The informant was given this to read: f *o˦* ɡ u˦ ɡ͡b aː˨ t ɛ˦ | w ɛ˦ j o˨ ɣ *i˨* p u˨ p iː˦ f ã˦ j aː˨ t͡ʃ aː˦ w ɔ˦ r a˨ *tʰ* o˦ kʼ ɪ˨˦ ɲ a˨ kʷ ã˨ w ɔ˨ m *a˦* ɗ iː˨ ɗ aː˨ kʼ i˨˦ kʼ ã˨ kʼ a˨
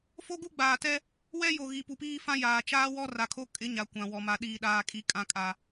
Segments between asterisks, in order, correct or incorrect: correct, correct, incorrect: kʰ, incorrect: a˨

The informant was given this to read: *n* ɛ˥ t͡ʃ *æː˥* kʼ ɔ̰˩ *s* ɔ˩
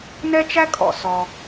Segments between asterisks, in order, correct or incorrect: correct, incorrect: æ˥, correct

